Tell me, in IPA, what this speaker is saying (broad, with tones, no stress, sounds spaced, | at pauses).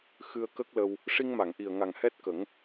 x ɨ˧ ə̯ k ə˦˥ k̚ l ə˧ w | ʂ i˧ ŋ m a˨˩˨ ŋ ʔ i˨˩ ə̯ ŋ a˨˩ ŋ h ɛ˦˥ t̚ k ə˨˩˦ ŋ